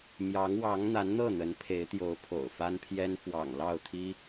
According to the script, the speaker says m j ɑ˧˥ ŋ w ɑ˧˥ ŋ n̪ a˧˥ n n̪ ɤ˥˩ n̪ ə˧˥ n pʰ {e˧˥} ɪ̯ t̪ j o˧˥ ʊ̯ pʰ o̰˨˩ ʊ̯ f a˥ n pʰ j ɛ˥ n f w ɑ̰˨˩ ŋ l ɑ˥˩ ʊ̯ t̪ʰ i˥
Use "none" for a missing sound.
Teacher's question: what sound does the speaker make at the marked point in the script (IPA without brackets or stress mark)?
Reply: e˧˥